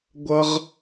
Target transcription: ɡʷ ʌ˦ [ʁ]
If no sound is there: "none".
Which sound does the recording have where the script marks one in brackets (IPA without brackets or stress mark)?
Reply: ʁ